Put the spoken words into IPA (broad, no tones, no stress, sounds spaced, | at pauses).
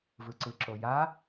v ɯ ǀ ɯ ǁ o j a